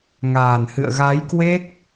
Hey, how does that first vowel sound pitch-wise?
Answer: low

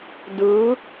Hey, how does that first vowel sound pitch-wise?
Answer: rising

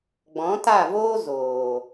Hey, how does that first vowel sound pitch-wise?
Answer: rising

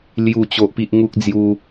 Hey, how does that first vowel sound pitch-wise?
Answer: falling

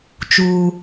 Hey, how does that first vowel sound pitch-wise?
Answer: low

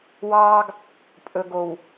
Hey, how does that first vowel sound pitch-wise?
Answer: high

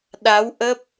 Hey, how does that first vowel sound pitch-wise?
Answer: rising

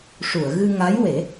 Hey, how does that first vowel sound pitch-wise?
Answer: low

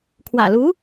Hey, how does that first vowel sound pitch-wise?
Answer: low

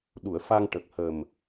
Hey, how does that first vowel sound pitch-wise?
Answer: low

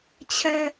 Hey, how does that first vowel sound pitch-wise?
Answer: low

